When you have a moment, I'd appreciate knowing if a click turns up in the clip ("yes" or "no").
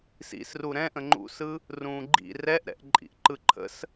yes